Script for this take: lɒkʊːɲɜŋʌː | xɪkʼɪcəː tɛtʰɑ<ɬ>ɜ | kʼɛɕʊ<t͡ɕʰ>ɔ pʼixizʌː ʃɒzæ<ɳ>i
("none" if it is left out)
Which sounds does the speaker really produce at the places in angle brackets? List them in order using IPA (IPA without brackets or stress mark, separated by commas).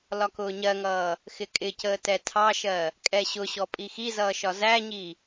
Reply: ʃ, ɕ, ɲ